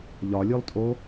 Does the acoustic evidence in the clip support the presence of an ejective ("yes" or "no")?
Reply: yes